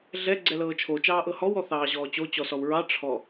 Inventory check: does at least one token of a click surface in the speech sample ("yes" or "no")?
yes